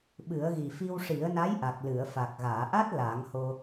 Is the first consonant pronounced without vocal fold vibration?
no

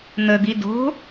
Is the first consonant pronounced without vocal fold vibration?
no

